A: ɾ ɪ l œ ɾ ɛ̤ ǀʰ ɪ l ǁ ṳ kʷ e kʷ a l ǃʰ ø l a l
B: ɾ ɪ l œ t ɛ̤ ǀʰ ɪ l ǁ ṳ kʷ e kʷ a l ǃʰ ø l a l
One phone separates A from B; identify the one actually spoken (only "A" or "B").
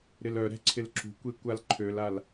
A